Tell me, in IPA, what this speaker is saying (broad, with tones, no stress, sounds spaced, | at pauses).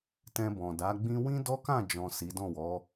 t ɛ̃˧ b ɔ̃˨ d a˨˦ ɡ͡b ĩ˦ w ĩ˦ d ɔ˦ k ã˦˨ d͡ʒ ɔ̃˨ s i˨˦ d ɔ̃˦˨ w ɔ˨˦